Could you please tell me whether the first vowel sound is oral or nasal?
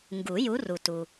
oral